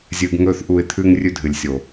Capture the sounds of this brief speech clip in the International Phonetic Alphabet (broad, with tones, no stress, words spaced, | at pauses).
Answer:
zʲɨː˧ɡŋɵː˦θʔu˧ɪ̯t̪ʰʉ˦ŋ rʲʉ˦dʱɨ˨lʲsʲo˨